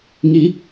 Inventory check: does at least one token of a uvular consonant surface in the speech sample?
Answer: no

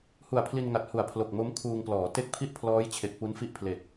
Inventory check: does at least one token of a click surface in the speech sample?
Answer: no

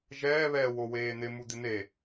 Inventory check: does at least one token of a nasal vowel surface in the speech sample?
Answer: no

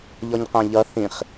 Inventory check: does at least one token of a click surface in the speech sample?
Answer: no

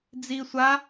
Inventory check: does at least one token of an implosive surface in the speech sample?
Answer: no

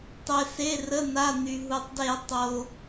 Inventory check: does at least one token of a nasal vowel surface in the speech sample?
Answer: no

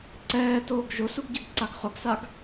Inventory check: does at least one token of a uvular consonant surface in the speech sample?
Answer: yes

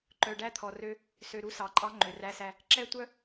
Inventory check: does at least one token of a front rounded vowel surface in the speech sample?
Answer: yes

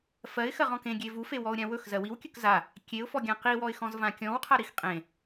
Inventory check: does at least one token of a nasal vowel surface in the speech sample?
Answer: yes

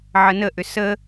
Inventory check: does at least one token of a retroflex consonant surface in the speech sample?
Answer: no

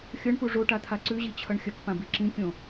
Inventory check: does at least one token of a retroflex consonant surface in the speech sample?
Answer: yes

